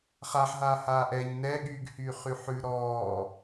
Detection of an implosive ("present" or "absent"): present